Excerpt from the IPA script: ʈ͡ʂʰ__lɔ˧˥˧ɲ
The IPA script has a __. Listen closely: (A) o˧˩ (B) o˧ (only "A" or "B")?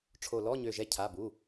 A